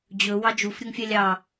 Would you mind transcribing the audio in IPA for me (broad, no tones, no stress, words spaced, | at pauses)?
d͡ʑɵ wɑd͡ʒuf ɾʲɵŋfʲælʲɑ